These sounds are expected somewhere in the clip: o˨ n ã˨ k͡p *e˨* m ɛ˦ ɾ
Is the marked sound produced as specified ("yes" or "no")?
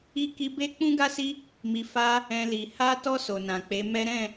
no